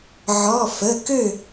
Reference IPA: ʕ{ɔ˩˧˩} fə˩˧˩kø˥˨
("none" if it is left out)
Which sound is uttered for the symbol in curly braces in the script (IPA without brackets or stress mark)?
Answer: ɔ˩˧˩